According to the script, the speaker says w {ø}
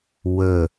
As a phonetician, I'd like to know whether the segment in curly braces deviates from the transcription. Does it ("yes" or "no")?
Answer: yes